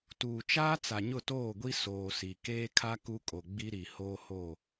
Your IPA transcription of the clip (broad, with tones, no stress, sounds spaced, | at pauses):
t uː˨ t͡ʃ aː˦ t͡s a˨ ɲ ʊ˦˨ t oː˦˨ ɡʷ i˦ s oː˨ s i˨ k eː˦ kʰ a˦ k u˦ kʼ o˨ ɡ͡b i˦ ɾ i˨ h oː˦ h o˦˨